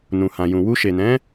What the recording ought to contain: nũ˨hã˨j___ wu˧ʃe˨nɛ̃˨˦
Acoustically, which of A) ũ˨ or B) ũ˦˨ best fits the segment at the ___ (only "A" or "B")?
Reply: A